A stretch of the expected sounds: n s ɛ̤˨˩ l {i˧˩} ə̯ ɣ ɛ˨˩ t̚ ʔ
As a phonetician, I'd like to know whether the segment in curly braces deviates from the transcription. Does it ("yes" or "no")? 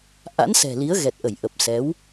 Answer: yes